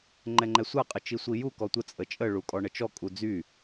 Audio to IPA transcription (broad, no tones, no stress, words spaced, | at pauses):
ŋ͡ǃɛŋ͡ǃɛsʷaqʼə t͡ʃisʷiju kɔtʷə t͡sʼət͡ʃʼəɭukʼɔ ɳət͡ʃɔ kʼud͡zy